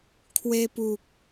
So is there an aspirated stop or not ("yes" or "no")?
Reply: yes